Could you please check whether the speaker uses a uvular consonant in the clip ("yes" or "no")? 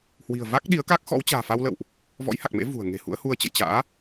no